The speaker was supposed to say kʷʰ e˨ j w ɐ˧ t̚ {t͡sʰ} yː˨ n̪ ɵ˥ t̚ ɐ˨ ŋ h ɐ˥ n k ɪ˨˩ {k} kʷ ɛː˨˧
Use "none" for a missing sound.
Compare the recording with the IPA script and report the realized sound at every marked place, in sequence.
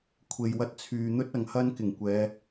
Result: t͡sʰ, ŋ

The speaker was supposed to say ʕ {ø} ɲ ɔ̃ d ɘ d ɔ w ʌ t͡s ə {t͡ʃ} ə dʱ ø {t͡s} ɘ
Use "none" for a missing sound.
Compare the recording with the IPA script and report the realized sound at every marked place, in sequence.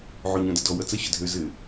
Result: ø, ɕ, z

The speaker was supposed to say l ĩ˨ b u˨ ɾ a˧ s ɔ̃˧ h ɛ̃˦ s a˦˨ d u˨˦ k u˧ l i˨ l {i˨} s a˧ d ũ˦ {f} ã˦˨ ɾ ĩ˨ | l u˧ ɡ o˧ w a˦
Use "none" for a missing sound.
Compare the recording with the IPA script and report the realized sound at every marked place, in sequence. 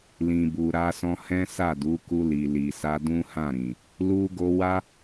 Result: i˨, h

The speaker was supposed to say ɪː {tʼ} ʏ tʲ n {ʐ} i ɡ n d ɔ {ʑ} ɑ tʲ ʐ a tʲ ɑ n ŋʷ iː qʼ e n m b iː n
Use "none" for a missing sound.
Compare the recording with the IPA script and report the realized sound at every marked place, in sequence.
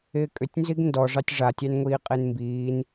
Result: kʼ, z, ʐ

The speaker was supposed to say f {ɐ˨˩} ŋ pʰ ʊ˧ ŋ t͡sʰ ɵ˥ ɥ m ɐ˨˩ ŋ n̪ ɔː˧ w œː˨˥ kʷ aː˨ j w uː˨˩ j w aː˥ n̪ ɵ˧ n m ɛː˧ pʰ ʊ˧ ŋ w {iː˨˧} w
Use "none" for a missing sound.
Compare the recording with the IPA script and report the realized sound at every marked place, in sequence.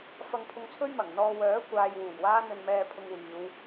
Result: ɐ˧, iː˨˧

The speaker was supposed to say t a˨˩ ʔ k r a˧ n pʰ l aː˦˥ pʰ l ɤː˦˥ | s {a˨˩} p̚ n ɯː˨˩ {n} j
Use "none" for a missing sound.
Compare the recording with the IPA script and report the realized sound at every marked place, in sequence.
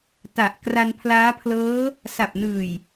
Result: a˨˩, none

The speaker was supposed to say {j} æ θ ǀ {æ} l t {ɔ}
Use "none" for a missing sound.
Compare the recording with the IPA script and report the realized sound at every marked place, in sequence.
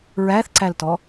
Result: ɹ, æ, ɔ

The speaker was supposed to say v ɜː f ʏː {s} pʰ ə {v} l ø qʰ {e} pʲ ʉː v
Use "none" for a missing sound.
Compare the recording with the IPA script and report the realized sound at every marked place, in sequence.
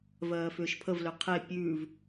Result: ʃ, v, e

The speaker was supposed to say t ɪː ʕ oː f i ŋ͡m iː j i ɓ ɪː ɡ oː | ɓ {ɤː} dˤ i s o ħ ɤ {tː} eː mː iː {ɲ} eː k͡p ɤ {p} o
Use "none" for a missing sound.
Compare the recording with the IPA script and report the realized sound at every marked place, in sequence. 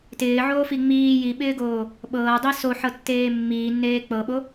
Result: ɤː, tː, nː, ɓ

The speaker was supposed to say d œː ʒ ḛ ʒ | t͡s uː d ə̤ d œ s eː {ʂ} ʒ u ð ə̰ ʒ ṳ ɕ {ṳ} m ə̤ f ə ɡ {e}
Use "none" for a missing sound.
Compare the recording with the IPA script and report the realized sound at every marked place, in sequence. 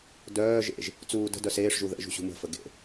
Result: ʂ, ṳ, ḛ

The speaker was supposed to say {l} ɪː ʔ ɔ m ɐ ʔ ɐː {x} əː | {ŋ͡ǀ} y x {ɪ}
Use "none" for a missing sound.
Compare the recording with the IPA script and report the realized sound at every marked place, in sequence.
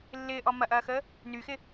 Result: lː, x, n, ɪ

